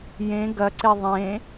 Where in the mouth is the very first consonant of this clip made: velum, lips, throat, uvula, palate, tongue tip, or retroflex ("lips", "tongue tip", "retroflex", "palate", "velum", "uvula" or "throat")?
palate